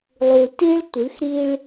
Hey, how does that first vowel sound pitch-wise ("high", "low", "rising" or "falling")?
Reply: low